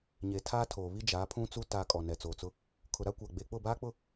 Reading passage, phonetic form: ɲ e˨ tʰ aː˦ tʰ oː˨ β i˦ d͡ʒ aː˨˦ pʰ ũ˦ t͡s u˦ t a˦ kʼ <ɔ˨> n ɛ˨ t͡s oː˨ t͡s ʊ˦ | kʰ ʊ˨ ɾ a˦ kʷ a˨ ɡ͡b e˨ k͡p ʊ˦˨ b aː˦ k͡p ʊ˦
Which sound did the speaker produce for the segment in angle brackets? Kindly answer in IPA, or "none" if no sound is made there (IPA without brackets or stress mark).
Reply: ɔ˨